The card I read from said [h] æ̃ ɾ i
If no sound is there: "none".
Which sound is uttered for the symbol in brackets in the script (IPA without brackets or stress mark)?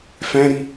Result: f